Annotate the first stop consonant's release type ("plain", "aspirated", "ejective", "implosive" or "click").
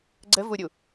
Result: click